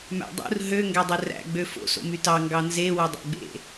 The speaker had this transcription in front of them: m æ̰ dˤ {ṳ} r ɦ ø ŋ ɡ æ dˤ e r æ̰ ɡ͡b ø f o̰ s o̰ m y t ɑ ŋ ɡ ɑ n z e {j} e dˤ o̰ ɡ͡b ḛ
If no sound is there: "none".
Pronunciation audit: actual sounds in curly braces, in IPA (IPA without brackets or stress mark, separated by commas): ṵ, w